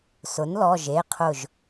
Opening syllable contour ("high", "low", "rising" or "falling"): rising